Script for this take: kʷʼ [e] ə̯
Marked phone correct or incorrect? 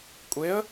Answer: correct